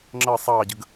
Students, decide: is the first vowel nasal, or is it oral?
oral